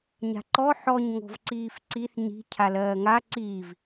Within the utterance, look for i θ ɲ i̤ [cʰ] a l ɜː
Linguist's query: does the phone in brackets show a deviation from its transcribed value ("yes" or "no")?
no